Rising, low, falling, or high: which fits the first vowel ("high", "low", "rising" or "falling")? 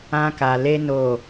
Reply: high